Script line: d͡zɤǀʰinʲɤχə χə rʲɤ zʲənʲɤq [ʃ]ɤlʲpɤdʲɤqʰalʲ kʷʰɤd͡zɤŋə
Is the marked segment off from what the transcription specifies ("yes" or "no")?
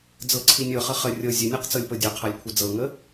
yes